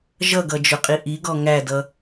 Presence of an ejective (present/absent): present